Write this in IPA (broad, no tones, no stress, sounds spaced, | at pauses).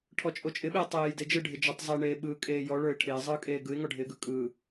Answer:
ʈʰ ɔ t͡ʃʼ o t͡ʃʼ ɪ ɓ ɪː tˤ eː j d e d͡ʒ ɯ ɖʱ ɪ d͡ʒ ɔ tˤ zˤ e ɳ eː ɓ ɯː kʼ eː j ɔ ɭ ə˞ ɪ̯ ʈʰ ɪː zˤ ɯː kʼ eː ɡ ɯ ɪ̯ ŋ ɔ ɖʱ ɪː ɡ ɯ kʼ ɯː